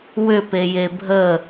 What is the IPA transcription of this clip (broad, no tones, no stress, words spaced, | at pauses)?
wʏpeje bʱə